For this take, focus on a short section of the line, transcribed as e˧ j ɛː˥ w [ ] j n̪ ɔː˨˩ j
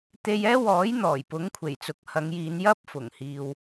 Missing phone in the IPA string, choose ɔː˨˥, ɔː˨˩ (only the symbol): ɔː˨˥